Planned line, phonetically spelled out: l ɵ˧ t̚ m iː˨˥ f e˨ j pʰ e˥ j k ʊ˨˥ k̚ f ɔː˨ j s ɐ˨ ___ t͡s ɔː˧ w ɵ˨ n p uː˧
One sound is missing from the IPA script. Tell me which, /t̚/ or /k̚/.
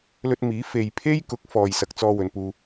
k̚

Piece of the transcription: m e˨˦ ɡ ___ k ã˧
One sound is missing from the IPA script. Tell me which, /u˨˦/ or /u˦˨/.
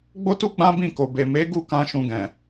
u˦˨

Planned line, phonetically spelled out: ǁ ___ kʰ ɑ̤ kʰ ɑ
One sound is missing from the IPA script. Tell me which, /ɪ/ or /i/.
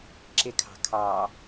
ɪ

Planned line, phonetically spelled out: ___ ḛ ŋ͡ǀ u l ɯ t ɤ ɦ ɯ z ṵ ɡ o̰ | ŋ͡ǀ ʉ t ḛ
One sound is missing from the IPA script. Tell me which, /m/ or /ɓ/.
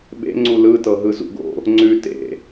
ɓ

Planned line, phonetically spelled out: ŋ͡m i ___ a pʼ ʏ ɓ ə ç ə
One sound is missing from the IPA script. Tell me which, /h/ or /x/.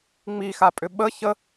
x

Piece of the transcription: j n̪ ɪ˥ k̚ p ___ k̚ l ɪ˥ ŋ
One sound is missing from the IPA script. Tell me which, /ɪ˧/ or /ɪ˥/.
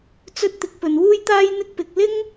ɪ˧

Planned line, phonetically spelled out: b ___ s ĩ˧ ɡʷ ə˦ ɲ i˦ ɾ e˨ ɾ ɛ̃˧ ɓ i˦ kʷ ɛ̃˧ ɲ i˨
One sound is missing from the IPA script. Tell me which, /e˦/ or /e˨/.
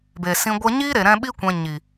e˨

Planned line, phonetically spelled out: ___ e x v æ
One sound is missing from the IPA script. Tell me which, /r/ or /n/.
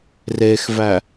r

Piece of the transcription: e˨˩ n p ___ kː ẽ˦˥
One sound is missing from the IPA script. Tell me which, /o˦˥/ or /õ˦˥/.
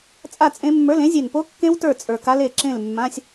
o˦˥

